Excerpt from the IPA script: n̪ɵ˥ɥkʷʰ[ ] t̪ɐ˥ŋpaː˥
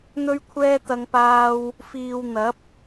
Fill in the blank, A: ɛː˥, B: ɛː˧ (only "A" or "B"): A